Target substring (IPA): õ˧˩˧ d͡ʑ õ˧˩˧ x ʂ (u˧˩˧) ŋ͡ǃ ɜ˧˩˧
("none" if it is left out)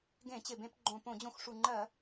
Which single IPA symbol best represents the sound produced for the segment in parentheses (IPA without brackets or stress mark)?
u˨˩